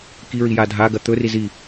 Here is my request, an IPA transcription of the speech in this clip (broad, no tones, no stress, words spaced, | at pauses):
kiɹija dʱaɡɐ t̪ɵri zi